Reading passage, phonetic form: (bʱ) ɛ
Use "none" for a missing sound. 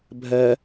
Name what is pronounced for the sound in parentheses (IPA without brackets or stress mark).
bʱ